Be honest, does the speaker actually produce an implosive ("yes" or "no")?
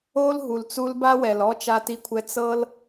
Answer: no